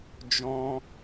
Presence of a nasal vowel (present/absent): present